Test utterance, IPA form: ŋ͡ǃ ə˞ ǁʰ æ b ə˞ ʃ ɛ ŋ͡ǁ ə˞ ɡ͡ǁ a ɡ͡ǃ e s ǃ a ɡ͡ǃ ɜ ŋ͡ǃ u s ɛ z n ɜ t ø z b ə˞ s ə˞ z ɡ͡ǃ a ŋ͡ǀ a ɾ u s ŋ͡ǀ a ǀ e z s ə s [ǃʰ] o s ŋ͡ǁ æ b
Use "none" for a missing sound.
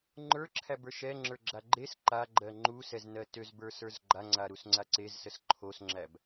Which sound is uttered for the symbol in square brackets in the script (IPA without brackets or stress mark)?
ǃʰ